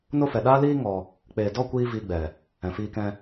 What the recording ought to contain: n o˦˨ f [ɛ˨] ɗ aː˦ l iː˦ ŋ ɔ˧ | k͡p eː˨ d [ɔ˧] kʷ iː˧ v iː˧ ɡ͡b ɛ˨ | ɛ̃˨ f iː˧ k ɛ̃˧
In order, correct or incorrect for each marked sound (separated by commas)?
correct, incorrect